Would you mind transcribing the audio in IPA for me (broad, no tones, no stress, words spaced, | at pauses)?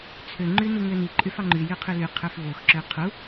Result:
t͡sʰøŋ͡ǃy nuŋøni ǃʼyfɑŋ͡ǃy jyqʰyly qʰøfvoxǁø qʰu